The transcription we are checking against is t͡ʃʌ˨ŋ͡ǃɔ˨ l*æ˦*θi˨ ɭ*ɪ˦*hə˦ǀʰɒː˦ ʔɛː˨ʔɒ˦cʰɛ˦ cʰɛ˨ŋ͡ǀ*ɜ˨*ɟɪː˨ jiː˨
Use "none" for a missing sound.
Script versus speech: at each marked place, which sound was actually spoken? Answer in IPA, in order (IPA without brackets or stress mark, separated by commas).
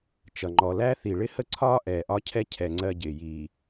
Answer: æ˦, ɪ˦, ɜ˦